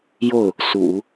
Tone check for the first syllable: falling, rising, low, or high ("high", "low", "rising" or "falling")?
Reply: falling